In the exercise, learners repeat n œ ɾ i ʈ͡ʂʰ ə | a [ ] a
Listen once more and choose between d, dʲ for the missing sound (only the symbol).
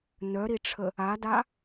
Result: d